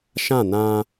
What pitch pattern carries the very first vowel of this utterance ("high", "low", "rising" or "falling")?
falling